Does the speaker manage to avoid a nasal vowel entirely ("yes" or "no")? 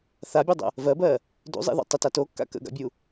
yes